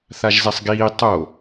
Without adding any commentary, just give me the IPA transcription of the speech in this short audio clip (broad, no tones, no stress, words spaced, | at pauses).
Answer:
θaʒzɛsˤɡiː tˤo